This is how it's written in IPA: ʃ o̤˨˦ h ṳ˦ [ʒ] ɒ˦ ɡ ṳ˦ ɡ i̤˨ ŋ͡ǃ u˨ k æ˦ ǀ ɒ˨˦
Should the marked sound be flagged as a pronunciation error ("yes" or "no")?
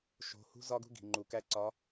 yes